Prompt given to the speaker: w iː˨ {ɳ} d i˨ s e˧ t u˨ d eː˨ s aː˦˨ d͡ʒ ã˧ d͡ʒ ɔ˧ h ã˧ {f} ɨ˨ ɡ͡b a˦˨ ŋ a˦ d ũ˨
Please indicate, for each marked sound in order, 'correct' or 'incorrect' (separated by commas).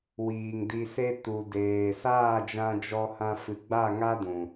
incorrect, correct